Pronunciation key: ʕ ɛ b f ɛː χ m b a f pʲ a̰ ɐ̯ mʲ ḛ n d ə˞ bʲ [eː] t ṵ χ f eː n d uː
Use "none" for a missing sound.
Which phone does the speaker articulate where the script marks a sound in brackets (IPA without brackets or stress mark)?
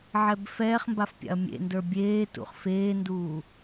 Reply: eː